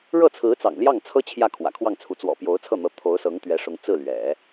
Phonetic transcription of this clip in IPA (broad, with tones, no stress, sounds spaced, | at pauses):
ɻ ɤ˥˩ t͡sʰ ɹ̩˧˥ t͡s ɑ̰˨˩ ŋ l j ɑ˥˩ ŋ t͡sʰ ɤ˥ t͡ɕʰ j ä˥˩ kʰ w ä̰˨˩ kʰ w ɑ˥˩ ŋ t͡sʰ u˧˥ t͡s w ɔ̰˨˩ p j o˧˥ ʊ̯ t͡sʰ ɤ˥˩ n̪ ɤ˧˥ t̪ʰ o˧˥ ʊ̯ s ɤ˧˥ ŋ t̪ ɥ ɛ˧˥ ʂ ʊ˧˥ ŋ t͡s ɹ̩˥˩ l ɥ ɛ̰˨˩˦